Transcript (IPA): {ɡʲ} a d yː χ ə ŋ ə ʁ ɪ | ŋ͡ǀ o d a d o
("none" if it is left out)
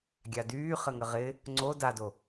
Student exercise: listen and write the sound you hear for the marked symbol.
ɡʲ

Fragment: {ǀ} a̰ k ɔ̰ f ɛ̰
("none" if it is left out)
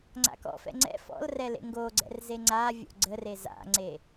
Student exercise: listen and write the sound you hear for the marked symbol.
ŋ͡ǀ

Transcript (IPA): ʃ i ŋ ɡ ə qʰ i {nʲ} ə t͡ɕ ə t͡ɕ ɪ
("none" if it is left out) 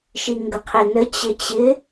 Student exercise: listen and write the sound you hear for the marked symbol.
n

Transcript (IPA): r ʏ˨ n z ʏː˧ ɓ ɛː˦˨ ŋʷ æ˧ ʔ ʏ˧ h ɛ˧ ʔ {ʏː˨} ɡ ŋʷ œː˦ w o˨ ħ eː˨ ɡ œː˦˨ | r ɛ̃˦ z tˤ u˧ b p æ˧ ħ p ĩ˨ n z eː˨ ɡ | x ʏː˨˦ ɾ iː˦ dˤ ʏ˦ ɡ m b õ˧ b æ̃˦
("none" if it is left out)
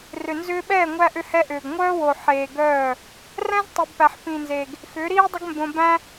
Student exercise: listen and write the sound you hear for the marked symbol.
ʏː˨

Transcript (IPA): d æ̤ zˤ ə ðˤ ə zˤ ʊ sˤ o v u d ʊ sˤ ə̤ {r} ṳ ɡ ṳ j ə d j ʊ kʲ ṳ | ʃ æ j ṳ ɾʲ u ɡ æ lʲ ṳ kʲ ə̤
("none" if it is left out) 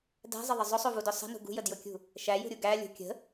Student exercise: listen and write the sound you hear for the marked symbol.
n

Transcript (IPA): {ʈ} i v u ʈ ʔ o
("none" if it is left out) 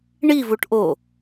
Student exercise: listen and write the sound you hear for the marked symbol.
ɳ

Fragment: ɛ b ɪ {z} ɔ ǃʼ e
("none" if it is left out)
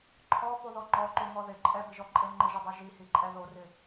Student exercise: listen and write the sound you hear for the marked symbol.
ʒ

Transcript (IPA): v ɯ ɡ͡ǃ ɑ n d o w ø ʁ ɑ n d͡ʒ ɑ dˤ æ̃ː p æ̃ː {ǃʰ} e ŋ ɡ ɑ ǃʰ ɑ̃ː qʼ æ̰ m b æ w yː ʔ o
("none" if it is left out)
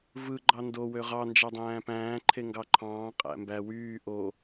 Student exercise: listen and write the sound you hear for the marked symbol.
ǃʰ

